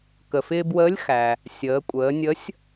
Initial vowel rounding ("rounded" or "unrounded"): unrounded